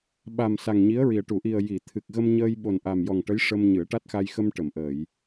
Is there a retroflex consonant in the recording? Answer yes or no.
yes